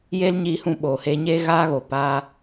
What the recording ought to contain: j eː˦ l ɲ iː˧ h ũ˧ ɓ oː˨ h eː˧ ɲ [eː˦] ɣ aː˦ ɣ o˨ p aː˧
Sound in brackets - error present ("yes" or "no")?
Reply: no